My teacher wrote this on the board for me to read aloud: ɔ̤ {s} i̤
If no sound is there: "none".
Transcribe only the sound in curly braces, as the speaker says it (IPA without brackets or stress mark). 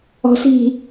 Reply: s